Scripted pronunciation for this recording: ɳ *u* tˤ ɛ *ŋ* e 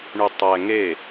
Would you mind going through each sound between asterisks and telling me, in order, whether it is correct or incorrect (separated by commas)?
incorrect, correct